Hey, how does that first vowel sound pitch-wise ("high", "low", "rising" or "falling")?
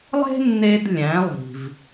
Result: high